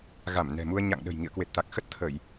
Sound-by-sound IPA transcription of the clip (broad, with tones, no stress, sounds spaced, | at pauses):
ɣ a˧˩ m n ɛ̤˨˩ m u˧ ə̯ ɲ a̰˧˨ ŋ ɗ ə̤˨˩ j ŋ ḭ˧˨ ə̯ k w e˨˩ t̚ t̪ a˨˩ k̚ x ə˦˥ t̚ t̪ʰ ə˧˩˨ j